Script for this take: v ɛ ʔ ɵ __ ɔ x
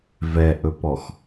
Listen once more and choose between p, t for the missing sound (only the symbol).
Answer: p